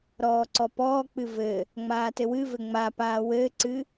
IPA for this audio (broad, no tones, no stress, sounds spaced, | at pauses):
ɾ ɔː ǀ ɔ p ɔː k͡p ɨ v ɘ | ŋ͡m aː t ɘ w ɨ v ɘ ŋ͡m a p aː w ɘː ǀ ɨ